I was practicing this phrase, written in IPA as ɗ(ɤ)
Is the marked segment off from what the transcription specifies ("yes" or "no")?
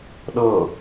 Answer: no